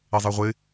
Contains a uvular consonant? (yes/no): yes